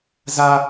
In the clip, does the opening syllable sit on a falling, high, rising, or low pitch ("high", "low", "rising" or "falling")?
high